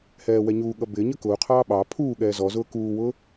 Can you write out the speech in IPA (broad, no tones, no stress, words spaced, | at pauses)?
hɛːwɛɲuːɠʌ bɪɲə kʊːqʰɑː ɓɑ pʰuː ɠɛːzɔzʊː kuːwʊː